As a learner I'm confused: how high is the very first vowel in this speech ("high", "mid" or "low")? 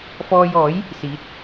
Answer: mid